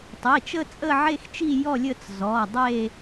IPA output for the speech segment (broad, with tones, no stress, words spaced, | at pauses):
tˤi˩˧˩t͡ʃə˥˧ t͡sʼə˥˧ʕe˥˧xt͡ʃi˥˧ jɔ˥˧lʲə˥˧t͡s zɔ˩˧˩dˤe˥˧